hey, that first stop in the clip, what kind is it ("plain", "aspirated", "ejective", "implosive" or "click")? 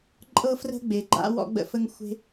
click